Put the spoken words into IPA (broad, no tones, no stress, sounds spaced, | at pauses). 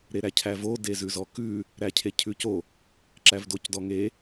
ɾ e ɾ æ cʰ æ v o d e z ʉ z ɔ k ʉ | ɾ æ cʰ e cʰ ʉ c o | ǁ æ v d o c d ɔ ŋ e